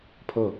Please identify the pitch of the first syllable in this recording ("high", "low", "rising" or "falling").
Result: falling